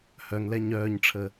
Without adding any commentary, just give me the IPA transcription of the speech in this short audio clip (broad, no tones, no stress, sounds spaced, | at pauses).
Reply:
h œ ŋ l ɛ ɲ œː ɲ ʈ͡ʂʰ ə